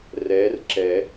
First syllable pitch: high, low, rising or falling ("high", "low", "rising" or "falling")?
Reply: rising